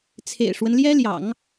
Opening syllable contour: low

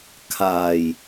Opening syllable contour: low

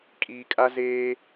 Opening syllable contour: low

